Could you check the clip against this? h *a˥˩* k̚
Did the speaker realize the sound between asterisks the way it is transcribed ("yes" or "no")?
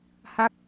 yes